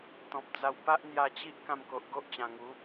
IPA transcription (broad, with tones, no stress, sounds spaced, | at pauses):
t̪ ɔ̃˨ p̚ d͡z a˧ w p a˦ ʔ n̪ j a˧ t͡ɕ i˦ ʔ k ã˧ m k o˨ ʔ ɡ o˦ ʔ t͡ɕ ã˨˩ ŋ u˨˦